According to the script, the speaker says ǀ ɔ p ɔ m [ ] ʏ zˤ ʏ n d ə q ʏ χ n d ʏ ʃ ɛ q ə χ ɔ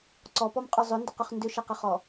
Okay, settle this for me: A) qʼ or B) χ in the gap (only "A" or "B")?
A